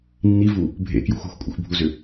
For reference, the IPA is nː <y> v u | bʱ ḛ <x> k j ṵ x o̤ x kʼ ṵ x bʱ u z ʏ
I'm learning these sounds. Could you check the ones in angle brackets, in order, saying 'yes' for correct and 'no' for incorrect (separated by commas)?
no, no